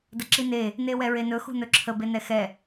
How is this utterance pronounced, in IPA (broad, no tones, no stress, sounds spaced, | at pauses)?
d ə ǁ i n e | n e w ɛ ɹ e n ɵ x ṳ n ɵ ǁʰ ə b e n ɛ x ɛ